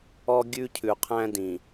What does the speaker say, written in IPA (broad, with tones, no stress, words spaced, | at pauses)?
ɔ˦ɡʲʉ˦cʰʉ˨qʰæ̃˦ dĩ˨